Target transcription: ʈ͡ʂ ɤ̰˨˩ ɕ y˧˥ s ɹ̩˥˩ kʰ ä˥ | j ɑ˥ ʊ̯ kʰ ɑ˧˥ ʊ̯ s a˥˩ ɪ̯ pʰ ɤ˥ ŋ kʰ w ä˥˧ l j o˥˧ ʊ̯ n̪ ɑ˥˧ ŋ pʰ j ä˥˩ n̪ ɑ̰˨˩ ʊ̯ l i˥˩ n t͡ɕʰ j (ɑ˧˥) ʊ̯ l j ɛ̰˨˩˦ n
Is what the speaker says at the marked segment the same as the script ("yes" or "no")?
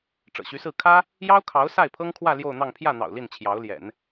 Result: yes